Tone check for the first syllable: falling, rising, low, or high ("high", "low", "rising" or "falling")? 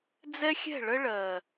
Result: high